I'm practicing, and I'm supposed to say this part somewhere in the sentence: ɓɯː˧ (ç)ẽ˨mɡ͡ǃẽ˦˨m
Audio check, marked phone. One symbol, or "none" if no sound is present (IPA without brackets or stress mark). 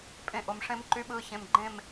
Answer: ç